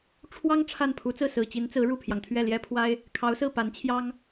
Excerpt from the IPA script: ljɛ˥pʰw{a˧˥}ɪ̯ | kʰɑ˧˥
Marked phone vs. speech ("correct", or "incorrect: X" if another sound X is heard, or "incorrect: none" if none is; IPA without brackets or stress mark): incorrect: a˥